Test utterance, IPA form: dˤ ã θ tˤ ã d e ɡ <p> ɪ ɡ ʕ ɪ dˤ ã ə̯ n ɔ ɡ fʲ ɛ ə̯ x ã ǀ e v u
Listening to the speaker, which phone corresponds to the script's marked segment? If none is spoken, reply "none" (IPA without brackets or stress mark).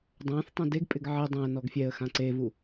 pʼ